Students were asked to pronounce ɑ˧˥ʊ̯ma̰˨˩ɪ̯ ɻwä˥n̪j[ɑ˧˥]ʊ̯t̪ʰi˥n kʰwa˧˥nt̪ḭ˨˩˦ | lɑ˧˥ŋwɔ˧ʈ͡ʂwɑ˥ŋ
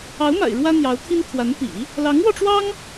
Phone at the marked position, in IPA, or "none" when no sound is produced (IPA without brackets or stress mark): ɑ˧˥